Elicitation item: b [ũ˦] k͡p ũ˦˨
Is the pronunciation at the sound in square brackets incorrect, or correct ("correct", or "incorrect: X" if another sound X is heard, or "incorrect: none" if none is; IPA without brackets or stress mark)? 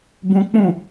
correct